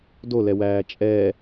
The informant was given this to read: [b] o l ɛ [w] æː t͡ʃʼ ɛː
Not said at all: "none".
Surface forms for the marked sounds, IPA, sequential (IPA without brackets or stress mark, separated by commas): d, w